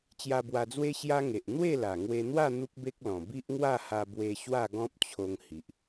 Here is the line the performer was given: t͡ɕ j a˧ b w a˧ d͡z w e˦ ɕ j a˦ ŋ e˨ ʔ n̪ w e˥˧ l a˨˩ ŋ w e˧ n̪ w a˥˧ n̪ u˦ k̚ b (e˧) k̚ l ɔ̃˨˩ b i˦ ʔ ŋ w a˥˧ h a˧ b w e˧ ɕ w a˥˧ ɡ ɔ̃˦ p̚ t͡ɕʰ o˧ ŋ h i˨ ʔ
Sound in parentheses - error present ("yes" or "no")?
yes